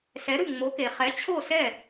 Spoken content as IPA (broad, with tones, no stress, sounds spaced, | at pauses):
s ɛ˩˥ ɾ ɯ˥˩ ŋ͡m o˩˥ k e˩ χ ɛ˩˥ t͡ɕʰ o˥˩ s ɛ˥˩